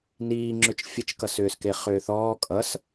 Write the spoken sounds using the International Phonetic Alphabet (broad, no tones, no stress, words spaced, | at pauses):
niːŋ͡ǁʏt͡ʃ fʲət͡ʃkʌsʏːske χʏːθɔː kʼʌs